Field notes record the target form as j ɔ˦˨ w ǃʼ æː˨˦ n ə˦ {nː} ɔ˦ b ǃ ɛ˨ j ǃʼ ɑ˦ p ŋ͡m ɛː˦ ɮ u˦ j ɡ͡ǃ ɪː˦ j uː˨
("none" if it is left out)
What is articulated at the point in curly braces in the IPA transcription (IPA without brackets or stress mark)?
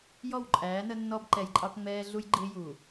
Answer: nː